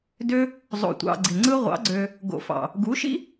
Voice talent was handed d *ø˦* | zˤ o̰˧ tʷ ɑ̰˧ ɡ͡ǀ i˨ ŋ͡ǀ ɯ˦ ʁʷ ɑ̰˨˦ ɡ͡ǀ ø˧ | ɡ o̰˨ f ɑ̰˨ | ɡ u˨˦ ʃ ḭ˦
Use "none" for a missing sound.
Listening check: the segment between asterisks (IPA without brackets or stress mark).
ø˦